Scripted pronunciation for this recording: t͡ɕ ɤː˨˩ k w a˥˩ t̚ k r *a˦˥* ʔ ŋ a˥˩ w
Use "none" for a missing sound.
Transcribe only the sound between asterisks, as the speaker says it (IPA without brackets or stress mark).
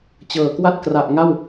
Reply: a˨˩